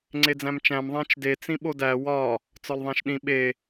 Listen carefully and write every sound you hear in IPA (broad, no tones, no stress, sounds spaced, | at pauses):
ŋ͡ǀ e d͡z æ̃ m t͡ʃ æ̃ m ðˤ æ̃ t͡ʃ d e t͡s ĩ ɓ o d æ w ɒ | t͡s ɒ l ðˤ æ̃ ʃ ɗ ĩ ɓ e